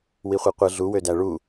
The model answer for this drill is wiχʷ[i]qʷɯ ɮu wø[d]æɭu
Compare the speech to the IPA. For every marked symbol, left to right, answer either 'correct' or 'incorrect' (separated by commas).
correct, correct